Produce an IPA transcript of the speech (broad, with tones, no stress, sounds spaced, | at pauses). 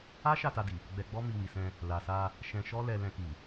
a˦ ʃ a˦˨ t a˧ d i˨ | ɡ͡b ɛ˧ ɡ͡b ɔ˦ m i˧ w i˨ s ɛ̃˧ | l a˨ s a˧ | ʃ ɛ̃˧ ʃ ɔ˦ l ɛ˧ l ɛ̃˧ k i˨